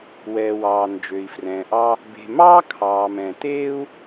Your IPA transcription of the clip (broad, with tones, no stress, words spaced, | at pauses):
wɛː˩wɑː˩ nd͡ʒø˩i̯frɛ̃ː˩ʔɑ˧ | be̤˩mɑː˥ kʰɑː˩mɛ̃˩ teː˥u̯